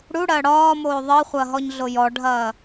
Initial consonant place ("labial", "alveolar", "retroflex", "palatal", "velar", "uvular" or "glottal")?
retroflex